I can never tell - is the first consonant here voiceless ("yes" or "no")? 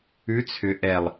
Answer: yes